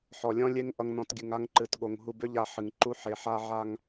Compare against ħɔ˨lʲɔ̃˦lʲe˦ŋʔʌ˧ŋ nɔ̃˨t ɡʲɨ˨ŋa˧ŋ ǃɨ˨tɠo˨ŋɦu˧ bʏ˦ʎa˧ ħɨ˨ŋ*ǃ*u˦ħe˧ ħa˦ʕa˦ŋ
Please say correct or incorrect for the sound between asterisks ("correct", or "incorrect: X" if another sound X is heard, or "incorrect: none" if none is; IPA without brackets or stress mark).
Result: correct